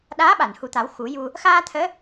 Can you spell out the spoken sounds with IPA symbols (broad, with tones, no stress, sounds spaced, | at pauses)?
ɗ aː˧˥ ɓ a˨˩˨ n h u˨˩ t̪ a˨˩˦ w x u˨˩˦ j u˧ | x aː˧ t̪ʰ əː˧˥